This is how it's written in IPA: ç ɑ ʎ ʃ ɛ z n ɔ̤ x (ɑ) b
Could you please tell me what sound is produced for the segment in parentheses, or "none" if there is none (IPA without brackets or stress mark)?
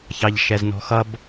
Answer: ʌ